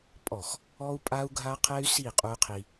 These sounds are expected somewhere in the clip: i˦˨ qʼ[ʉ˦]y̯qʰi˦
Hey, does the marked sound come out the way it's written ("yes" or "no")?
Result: no